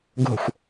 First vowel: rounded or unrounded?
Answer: rounded